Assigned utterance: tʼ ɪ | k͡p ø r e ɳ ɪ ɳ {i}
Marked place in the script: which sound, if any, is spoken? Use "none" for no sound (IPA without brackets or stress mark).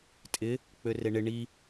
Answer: i